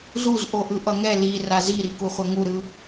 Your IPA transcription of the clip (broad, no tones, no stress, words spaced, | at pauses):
zuz ʔoʔɯʔʌŋɛ li razi ɾikuχʷʌŋu ɾɯ